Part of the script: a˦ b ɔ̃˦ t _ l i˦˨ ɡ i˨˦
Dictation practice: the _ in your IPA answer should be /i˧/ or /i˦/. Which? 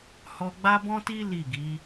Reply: i˦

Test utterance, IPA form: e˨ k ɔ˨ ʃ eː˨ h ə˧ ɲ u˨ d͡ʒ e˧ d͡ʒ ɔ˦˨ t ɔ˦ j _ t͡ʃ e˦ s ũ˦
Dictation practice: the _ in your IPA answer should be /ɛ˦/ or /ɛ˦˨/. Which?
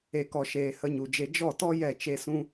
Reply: ɛ˦˨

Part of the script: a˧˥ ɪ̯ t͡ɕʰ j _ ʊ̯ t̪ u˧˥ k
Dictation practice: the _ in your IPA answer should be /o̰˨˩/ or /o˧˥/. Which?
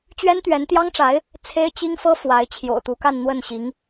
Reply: o̰˨˩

